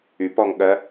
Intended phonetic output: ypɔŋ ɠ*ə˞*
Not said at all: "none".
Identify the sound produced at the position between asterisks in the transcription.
ɜ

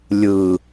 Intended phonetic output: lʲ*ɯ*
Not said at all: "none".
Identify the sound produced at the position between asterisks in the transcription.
ɯ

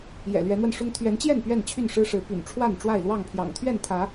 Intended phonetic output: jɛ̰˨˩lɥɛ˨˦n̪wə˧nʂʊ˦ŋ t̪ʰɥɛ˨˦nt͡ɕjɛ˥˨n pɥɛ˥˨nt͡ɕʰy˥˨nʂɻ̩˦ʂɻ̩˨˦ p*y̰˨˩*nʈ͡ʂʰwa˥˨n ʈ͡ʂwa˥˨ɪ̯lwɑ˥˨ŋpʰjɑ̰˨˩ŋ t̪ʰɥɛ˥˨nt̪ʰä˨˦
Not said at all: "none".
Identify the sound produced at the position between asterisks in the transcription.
y̰˨˩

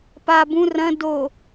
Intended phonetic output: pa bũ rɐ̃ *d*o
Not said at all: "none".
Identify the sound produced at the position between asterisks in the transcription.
d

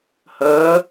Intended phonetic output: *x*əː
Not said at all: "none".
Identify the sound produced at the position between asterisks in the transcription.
h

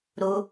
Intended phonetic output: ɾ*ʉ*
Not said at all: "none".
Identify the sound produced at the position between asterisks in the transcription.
u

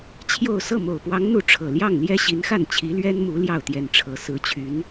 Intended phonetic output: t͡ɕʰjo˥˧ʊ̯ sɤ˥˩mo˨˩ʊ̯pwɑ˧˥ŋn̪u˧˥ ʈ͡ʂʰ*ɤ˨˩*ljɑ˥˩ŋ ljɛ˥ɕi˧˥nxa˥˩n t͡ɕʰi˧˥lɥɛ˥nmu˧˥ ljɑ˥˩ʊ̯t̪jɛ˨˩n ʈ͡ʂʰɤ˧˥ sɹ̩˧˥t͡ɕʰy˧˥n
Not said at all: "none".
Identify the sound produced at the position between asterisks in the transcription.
ɤ˨˩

